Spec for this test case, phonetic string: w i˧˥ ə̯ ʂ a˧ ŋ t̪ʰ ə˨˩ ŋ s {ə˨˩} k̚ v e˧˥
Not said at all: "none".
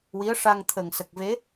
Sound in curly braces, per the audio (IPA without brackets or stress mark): ə˨˩